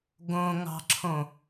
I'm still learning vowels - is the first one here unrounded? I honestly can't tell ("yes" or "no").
no